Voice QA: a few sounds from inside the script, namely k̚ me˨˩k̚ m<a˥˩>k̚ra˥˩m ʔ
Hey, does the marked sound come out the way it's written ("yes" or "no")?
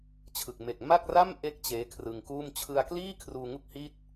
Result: yes